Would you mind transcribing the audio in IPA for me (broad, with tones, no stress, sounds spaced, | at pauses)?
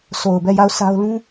s o˨ ʊ̯ b ɛ˦˨ j a˦˨ ʊ̯ s a˦ ʊ̯ l ũ˦